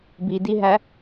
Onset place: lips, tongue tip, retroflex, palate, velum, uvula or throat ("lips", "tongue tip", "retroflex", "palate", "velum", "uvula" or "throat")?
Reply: lips